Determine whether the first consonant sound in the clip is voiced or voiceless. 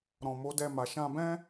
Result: voiced